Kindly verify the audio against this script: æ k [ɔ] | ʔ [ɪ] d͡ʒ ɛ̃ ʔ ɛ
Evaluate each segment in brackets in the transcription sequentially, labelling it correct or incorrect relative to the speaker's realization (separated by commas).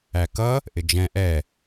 incorrect, correct